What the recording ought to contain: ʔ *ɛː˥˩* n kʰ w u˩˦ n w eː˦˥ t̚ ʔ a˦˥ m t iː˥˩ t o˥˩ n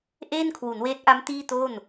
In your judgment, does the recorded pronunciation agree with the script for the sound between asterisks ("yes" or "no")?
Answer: no